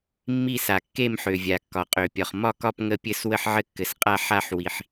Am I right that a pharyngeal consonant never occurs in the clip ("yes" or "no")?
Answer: no